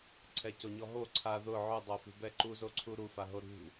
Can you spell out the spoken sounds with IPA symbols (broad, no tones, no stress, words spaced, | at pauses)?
ǀʰɛcoɲɔɦo ǀʰa ðʊ ʕʊdˤofṳbɛ ǃuzoǀʰu ɾufaɦo ɾṳ